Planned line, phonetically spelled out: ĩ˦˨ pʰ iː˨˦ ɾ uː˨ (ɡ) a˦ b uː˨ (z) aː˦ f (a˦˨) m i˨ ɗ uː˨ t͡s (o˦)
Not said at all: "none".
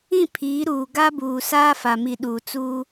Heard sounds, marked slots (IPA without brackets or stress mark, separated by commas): ɡ, s, a˨, u˦